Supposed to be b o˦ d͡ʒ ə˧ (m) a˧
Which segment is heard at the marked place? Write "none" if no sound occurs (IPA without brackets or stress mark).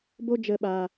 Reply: ɓ